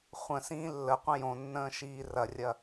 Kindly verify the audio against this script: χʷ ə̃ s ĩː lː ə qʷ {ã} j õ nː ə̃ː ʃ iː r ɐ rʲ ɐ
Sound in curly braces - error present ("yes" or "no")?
yes